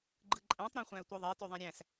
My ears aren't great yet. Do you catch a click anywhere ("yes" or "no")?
yes